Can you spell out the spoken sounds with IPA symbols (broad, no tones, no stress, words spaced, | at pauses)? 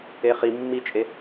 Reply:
eχi mːit͡ʃʼe